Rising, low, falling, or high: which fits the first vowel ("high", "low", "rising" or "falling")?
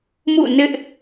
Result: falling